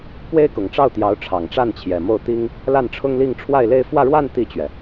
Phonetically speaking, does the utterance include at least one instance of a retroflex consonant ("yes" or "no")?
yes